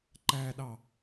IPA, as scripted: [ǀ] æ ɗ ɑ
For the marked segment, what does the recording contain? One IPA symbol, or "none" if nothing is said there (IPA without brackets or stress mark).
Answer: ǃ